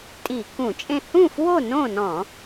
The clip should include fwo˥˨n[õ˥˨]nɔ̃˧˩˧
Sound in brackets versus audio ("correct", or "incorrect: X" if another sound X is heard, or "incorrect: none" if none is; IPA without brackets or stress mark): correct